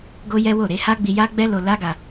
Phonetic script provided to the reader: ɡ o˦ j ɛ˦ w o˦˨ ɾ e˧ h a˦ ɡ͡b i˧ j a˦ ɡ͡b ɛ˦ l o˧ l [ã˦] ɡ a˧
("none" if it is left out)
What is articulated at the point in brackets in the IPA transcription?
a˦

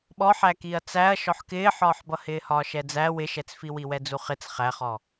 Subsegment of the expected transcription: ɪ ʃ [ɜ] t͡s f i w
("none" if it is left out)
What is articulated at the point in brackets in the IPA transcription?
ɛ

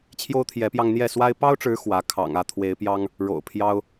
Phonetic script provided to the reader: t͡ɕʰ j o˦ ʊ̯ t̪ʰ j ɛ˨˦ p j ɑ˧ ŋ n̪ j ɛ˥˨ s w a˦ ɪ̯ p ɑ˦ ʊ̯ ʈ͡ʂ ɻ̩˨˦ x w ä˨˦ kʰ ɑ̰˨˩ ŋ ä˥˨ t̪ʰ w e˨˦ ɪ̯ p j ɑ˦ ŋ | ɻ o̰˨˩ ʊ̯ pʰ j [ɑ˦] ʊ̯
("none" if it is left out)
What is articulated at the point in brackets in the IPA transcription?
ɑ˦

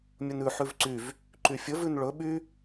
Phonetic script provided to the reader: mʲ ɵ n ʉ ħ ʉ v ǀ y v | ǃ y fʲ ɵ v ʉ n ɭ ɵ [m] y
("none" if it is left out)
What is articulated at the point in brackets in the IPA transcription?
ɓ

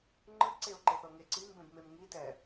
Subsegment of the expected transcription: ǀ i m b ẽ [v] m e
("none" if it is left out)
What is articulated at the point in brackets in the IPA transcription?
b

